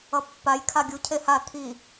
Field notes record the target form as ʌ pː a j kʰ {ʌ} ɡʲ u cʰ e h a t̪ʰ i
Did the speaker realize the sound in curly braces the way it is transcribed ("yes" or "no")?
no